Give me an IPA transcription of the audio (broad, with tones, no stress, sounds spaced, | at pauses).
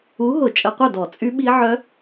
u˨˥ ɦ ʊ˧˩˧ t͡ʃʼ ə˧˩˧ qʷ œ˥˩ d ɔ˧˩˧ t͡sʼ y˦˥ ɓ i˦˥ ʕ œ˦˥